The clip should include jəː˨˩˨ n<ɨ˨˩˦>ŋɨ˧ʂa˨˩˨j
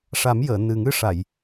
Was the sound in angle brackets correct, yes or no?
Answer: no